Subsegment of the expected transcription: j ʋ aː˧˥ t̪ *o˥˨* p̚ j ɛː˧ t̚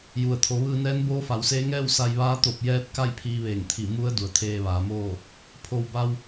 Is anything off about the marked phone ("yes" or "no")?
yes